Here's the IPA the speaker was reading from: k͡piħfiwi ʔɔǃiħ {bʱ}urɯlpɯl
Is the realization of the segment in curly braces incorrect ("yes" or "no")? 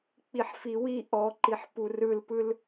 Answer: yes